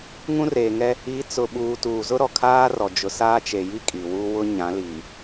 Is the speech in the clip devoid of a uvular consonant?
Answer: yes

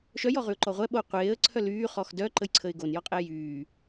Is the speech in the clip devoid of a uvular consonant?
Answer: no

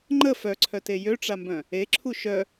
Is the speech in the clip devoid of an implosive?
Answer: yes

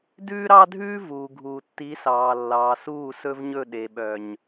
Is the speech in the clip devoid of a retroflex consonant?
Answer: yes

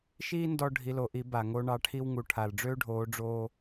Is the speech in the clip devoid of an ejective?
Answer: yes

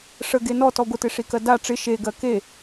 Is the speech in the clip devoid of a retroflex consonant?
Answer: no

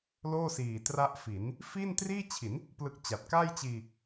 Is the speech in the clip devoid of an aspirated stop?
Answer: no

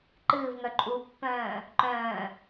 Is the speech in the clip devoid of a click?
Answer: no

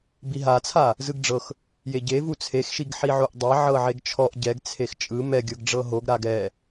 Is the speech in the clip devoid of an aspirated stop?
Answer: no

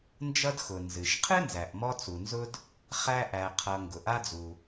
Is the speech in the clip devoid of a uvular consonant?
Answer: no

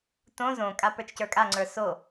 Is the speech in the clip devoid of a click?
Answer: no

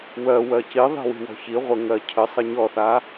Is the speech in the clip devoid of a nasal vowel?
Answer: yes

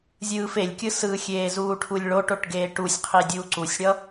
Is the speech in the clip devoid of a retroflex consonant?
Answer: no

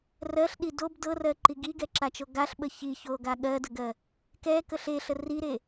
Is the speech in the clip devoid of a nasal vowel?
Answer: yes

